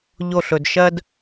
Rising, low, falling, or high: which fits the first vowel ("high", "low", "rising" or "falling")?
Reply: falling